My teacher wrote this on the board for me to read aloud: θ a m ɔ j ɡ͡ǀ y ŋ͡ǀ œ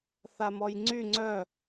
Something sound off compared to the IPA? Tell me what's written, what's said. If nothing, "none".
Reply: ɡ͡ǀ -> ŋ͡ǀ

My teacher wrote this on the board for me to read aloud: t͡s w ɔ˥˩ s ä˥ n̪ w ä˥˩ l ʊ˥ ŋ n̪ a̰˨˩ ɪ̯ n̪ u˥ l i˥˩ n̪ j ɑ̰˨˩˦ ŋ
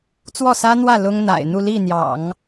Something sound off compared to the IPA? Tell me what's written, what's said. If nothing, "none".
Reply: u˥ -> u˥˧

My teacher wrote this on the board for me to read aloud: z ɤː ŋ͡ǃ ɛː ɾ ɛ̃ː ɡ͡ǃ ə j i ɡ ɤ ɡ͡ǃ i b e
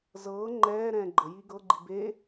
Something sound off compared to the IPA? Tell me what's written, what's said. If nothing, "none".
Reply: none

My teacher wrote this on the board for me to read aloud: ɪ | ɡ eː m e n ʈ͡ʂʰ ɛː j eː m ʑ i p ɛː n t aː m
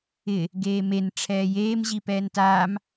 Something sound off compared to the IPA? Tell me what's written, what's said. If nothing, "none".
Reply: none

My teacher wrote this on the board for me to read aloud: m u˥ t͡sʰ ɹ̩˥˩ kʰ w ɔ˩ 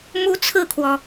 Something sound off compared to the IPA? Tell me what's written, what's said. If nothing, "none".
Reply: none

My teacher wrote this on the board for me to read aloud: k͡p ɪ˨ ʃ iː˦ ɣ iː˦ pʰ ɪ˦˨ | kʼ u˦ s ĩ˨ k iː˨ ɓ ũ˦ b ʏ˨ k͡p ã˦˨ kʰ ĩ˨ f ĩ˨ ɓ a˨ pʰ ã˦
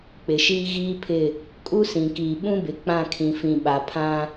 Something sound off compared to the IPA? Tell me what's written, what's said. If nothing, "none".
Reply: ʏ˨ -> ɪ˨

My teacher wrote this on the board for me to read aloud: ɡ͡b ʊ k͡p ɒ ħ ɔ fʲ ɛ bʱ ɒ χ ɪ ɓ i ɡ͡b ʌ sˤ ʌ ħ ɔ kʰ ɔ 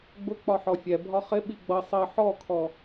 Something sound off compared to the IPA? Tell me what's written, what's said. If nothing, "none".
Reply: none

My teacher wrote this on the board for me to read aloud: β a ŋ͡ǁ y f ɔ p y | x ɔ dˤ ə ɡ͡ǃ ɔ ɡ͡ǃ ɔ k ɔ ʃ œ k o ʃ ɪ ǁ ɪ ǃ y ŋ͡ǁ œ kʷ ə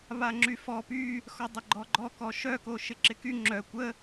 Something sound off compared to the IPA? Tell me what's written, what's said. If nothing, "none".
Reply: ǃ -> k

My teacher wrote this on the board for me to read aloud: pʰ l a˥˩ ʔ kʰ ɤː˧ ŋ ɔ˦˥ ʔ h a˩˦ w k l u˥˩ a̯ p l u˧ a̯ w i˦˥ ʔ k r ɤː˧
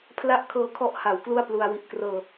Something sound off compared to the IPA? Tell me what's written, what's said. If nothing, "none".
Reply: ŋ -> kʰ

